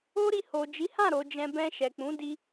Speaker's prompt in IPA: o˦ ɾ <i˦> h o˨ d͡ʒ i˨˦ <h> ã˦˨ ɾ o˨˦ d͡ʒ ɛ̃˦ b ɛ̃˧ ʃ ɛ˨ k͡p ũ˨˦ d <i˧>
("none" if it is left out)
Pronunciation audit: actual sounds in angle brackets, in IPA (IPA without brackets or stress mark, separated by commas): i˧, h, i˧